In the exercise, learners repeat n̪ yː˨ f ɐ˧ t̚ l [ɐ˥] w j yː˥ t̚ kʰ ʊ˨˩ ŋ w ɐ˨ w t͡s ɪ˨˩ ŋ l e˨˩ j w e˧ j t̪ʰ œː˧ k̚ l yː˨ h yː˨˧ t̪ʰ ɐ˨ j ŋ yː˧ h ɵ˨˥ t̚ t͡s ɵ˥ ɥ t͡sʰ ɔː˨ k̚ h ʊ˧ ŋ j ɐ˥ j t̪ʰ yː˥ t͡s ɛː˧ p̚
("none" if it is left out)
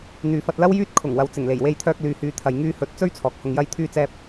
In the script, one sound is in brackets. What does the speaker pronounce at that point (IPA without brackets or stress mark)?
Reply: ɐ˥